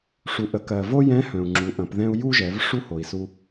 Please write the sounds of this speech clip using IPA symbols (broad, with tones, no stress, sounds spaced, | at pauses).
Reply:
ʂ u˩ ʔ ə˩˧ k ɜ˩ v o˥ j ɛ̃˧˥ h œ̃˩ u̯ ŋ͡ǁ u˩˧ ʔ ɐ̃˩˧ p ð ɛ̃˥ u̯ j u˥ ʒ ɛ˩˧ v ʂ u˥ h o˩ i̯ s u˧